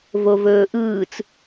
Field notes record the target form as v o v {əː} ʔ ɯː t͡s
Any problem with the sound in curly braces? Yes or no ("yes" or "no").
yes